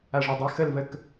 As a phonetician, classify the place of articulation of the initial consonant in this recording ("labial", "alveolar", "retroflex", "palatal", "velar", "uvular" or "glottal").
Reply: retroflex